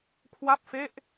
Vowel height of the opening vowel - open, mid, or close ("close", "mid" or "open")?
open